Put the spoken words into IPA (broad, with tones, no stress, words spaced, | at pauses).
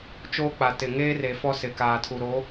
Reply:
t͡ʃoː˦k͡pa˨ tɪ˨ŋeː˦re˨ fɔ˦sɪ˨kaː˨tʰu˨ ɾo˨˦